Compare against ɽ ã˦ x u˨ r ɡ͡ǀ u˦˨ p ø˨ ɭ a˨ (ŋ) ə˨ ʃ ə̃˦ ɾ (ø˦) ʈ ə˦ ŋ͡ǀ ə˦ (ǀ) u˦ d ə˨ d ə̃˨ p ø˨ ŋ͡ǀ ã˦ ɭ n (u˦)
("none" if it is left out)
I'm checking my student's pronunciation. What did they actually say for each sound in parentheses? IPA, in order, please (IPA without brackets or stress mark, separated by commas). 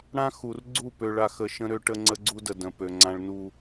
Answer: x, ø˦, ɡ͡ǀ, u˦